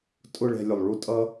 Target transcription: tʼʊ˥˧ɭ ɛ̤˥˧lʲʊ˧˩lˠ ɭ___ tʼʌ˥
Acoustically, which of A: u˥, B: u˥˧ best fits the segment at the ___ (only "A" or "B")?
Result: B